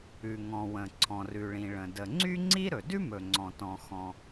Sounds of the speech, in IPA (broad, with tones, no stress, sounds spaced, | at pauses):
ʉ˩ ŋ ɔ̃˩ w ə̃˩ ǀʰ ɔ̃˩ r ʉ˩ ɭ ĩ˩ ɭ ə̃˩ d ə˩ ŋ͡ǀ y˥ ŋ͡ǀ i˥ ɾ ɵ˩ d ʉ˥ m ɵ˩ ŋ͡ǀ ɔ̃˩ t ɔ̃˩ x ɔ̃˩